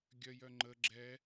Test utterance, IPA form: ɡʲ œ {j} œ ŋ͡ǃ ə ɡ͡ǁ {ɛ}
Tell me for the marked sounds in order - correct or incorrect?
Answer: correct, correct

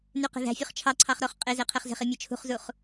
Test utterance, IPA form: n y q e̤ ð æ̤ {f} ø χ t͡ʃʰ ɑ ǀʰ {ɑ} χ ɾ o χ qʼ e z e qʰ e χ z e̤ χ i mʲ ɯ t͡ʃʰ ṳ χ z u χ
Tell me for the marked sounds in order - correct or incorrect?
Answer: incorrect, correct

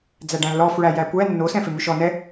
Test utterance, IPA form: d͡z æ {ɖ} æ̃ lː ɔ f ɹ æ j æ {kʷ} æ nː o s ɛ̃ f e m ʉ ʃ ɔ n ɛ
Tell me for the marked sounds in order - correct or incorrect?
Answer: correct, correct

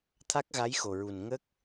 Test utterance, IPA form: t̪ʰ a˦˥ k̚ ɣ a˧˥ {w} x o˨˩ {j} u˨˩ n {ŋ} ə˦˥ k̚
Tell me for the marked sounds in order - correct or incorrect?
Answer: incorrect, incorrect, correct

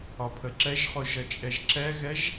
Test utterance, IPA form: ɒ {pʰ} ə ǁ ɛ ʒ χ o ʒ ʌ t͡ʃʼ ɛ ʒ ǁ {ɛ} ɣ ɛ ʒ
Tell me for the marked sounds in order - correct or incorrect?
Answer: correct, correct

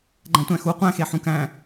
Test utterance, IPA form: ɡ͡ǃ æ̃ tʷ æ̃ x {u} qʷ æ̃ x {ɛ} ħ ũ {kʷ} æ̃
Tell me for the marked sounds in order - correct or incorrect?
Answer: correct, incorrect, incorrect

